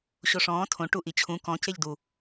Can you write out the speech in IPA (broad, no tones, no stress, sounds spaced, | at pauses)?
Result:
ɕ o ʂ ɔ̃ː tʰ õ ʈ u ʔ i t͡ɕʰ ũ k ɔ̃ c e ʎ d u